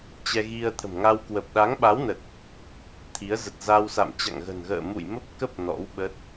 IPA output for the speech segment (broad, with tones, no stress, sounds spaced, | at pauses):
t͡ɕ ɛ˧ ɣ i˧ ə̯ t̪ʰ ə̤˨˩ m ŋ a˧ w k w ə˨˩ p̚ ɗ a˨˦ ŋ ɓ a˨˦ w n ə˨˩ t̚ | t̪ʰ i˨˦ ə̯ z ə˨˩ t̚ z a˧ w s a̰˧˨ m t͡ɕ a̰˧˨ ŋ ɣ ə̤˨˩ n ɣ ə̰ː˧˨ m ṵ˧˨ j m ə˦˥ p̚ k ə˦˥ p̚ n ɔ̰˧˥ w ɓ ə˦˥ t̚